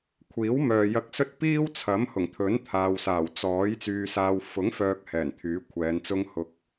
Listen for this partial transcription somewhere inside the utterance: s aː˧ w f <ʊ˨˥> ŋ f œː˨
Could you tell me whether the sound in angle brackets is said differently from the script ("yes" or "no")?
no